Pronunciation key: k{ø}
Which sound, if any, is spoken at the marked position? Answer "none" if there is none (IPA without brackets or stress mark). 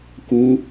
u